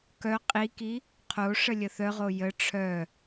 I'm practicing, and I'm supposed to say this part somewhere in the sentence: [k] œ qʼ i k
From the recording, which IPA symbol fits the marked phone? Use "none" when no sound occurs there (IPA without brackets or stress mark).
k